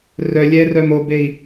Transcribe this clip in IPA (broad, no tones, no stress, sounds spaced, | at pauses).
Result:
r œ lʲ ɛ r œ m o b e i̯